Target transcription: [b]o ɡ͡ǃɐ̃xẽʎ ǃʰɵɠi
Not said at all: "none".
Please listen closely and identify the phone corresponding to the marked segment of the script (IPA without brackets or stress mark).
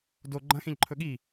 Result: d